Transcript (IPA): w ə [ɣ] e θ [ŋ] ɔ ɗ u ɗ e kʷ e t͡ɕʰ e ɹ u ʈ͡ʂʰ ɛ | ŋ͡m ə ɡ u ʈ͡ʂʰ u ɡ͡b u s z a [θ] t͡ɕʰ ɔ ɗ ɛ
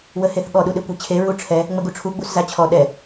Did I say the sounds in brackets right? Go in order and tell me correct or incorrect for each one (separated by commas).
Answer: incorrect, incorrect, incorrect